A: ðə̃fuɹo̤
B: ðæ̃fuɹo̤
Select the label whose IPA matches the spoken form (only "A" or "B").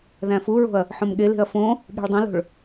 B